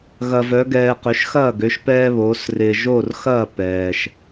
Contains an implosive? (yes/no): no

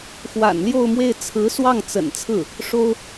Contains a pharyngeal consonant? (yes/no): no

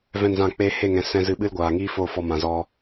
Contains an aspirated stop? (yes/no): no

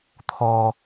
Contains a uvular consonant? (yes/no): no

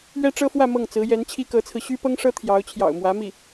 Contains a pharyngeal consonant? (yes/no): no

